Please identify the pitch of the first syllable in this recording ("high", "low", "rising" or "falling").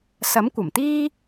rising